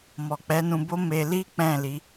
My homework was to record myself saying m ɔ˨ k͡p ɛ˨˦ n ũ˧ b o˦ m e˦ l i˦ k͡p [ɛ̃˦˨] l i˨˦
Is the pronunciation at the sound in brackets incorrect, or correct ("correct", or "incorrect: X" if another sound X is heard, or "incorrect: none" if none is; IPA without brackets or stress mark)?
correct